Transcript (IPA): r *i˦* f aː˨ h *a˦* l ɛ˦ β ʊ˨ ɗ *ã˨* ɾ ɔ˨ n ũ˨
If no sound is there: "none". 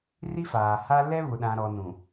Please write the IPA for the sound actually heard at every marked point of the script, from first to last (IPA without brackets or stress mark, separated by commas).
i˦, a˦, ã˨